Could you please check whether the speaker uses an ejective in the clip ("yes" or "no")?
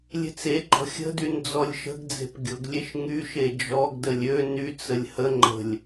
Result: no